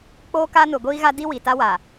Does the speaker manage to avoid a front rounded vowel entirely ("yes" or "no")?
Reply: yes